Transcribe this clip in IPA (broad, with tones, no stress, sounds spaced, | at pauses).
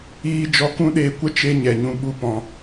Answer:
iː˦ d͡ʒ ɔ˧ k ũ˦ ɗ eː˧ kʷ ə˦ t͡ʃ e˦ ɲ ɛ˨ ɲ ũ˧ ɓ u˦ p ɔ̃˧